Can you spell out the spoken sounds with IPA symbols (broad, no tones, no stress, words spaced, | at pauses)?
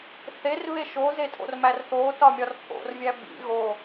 θerβe ʃozetʼo̰rmær θotɒmʲɒr pʰo̰rvʲæ bḭ ɣo